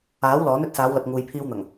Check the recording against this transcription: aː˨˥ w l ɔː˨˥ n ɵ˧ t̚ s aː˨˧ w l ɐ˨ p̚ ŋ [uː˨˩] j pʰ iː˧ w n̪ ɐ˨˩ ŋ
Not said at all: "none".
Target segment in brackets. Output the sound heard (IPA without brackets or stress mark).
uː˨